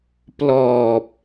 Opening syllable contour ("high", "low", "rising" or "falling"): low